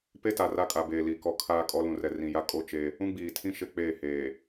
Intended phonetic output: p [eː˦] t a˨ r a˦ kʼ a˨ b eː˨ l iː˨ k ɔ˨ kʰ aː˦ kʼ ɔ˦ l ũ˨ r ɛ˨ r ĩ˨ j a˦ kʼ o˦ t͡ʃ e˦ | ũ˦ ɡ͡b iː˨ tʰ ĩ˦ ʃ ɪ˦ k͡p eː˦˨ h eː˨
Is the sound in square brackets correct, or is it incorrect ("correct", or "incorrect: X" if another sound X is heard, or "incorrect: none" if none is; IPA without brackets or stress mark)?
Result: incorrect: e˦